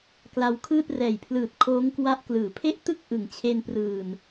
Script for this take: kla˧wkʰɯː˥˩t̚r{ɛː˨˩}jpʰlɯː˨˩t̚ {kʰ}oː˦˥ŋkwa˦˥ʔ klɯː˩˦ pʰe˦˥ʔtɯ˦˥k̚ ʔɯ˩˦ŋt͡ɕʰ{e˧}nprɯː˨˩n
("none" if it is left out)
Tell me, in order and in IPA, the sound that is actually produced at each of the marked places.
ɛː˨˩, kʰ, e˧

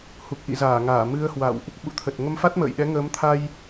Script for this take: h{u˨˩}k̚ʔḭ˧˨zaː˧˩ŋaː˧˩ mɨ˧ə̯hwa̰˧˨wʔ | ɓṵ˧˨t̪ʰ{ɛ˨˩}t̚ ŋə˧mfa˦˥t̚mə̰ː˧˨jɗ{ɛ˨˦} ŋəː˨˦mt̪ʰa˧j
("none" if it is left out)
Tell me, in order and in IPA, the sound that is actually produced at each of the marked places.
u˨˩, ə˨˩, ɛ˨˦

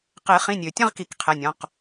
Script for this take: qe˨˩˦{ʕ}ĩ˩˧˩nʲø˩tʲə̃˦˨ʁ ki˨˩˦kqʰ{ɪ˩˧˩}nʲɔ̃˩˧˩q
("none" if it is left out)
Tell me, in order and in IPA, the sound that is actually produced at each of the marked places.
χ, ɛ˩˧˩

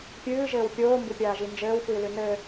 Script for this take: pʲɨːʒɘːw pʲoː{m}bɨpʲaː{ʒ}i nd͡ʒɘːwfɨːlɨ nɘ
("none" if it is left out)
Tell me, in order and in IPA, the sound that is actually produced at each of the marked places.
m, ʒ

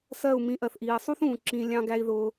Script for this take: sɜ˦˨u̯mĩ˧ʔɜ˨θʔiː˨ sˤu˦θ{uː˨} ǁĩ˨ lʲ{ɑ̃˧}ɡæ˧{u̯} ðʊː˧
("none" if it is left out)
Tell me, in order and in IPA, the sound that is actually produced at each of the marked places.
ũː˨, ɑ̃˧, i̯

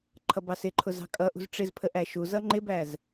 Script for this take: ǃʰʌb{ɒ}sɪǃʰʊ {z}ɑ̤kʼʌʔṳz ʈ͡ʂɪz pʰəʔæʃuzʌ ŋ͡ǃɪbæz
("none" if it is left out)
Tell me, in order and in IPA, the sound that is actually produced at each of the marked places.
ɑ, z

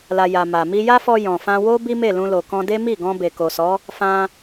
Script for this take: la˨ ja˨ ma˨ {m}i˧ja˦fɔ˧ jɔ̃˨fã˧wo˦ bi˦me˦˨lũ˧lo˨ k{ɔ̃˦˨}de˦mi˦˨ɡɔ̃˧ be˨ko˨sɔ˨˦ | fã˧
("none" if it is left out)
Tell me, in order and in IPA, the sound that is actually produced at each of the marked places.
m, ɔ̃˧

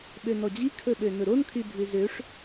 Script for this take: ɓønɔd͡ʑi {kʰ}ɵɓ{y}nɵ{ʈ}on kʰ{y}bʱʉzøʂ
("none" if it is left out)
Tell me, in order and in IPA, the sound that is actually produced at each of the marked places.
kʰ, ø, ɾ, y

